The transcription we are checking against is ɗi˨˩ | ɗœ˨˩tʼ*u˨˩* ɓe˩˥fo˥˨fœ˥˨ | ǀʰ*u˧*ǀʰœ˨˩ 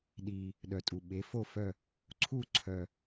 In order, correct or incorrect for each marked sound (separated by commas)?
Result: correct, incorrect